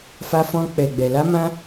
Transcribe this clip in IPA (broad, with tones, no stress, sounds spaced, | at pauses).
f a˦ f ɔ̃˦ k͡p ɛ˧ ɡ͡b ɛ˧ l a˦ m ã˦